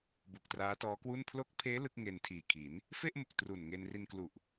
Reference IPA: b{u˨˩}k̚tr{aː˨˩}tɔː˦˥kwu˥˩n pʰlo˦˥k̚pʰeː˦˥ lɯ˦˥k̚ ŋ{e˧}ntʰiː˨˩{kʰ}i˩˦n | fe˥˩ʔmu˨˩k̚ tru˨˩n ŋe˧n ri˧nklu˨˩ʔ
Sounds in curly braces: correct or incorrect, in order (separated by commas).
correct, incorrect, correct, correct